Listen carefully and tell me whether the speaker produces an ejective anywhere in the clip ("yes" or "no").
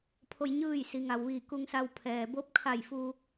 no